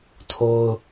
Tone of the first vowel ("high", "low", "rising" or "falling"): high